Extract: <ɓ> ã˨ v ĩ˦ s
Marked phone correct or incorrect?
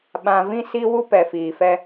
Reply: correct